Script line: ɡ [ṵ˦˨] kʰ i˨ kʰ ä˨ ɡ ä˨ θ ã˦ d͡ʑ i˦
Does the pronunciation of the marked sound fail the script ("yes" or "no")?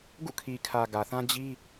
no